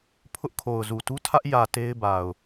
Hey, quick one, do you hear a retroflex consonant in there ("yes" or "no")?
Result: no